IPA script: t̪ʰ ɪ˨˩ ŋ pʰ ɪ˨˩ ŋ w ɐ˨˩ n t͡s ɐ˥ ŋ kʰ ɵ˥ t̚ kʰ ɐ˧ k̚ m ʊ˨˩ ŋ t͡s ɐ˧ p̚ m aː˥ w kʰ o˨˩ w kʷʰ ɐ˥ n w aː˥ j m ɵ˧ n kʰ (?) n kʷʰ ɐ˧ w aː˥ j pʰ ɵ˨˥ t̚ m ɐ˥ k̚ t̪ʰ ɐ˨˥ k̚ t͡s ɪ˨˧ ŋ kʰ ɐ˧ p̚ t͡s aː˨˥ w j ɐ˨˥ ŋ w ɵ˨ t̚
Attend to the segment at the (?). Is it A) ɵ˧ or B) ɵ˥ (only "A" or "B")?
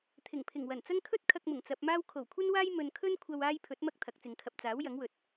B